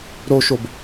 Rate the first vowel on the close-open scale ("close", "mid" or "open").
mid